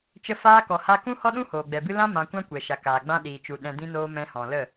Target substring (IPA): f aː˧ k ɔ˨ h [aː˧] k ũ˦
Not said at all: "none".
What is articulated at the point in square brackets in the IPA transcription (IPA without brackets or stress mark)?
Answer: a˧